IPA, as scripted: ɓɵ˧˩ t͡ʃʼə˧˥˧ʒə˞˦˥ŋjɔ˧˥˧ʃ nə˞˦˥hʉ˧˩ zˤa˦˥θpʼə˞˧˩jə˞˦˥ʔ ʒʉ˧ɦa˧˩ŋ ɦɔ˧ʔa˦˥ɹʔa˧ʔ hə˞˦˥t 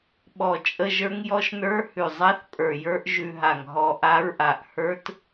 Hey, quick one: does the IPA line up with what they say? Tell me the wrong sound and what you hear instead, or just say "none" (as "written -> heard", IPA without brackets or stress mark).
ɵ˧˩ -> ɔ˧˩